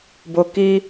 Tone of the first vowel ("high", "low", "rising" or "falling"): low